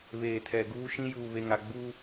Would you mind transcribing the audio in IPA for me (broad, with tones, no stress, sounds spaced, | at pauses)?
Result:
β eː˨ tʰ ɛ˨ ɡ uː˦ ʃ ĩ˦ j uː˨ β e˨ ŋ a˨ ɡ͡b uː˦